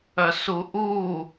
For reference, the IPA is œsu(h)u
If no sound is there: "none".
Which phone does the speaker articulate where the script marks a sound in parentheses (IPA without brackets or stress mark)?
ʔ